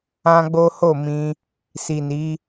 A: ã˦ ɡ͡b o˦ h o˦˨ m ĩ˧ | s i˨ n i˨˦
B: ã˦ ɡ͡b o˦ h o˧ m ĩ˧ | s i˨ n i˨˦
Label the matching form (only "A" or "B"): A